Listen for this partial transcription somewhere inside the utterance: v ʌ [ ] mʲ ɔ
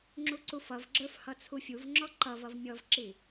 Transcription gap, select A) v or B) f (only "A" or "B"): A